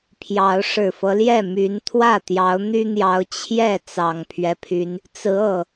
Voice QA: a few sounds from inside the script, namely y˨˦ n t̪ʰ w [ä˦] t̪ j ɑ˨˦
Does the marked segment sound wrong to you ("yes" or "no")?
yes